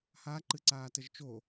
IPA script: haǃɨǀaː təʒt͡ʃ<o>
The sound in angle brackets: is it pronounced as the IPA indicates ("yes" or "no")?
yes